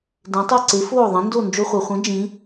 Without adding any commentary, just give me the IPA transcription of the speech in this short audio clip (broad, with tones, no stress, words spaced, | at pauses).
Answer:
dẽ˩˥tˤe˥˩ǀe˩˥ foː˥˩ðˤẽ˩˥ndo˥˩ nd͡ʒo˧χʷa˩χʷĩ˩˥ d͡ʒĩ˩˥